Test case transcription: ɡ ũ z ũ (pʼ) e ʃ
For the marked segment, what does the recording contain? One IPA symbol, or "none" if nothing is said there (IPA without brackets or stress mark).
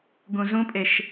pʼ